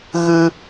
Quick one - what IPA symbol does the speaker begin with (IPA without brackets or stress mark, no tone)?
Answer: ɣ